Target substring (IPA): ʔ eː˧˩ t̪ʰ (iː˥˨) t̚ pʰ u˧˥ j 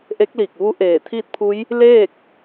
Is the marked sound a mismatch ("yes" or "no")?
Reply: no